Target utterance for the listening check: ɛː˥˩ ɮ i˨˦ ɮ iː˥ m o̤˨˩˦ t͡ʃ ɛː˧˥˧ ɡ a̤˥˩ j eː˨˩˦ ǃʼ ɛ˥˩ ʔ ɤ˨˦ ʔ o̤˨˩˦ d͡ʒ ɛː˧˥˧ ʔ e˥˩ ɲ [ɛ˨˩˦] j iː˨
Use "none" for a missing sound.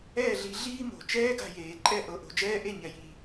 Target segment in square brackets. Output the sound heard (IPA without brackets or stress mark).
ɛ˨˩˦